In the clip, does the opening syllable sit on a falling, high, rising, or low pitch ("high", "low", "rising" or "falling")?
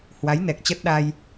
rising